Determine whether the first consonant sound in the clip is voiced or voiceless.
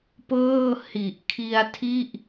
voiceless